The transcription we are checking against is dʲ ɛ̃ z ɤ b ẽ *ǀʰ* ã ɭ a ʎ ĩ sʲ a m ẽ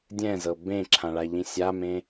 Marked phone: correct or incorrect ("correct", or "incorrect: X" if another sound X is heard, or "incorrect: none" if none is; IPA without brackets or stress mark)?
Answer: incorrect: ǁʰ